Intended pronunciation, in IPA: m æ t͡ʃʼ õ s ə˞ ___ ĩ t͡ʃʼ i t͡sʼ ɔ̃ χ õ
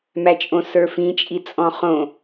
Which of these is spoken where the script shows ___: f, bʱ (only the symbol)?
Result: f